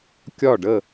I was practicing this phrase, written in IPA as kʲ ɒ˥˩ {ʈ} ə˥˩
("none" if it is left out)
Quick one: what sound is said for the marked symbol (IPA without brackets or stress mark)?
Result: ɖ